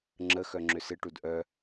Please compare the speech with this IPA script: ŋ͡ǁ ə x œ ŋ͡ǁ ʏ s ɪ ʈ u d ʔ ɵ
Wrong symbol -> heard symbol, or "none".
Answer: ɵ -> œ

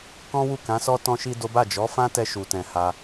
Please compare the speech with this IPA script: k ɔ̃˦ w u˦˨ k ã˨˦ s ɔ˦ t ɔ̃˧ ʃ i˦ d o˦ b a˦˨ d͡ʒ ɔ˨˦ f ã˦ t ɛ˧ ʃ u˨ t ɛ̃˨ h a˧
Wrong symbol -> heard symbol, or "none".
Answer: none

